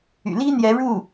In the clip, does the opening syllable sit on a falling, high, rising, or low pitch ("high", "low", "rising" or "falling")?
low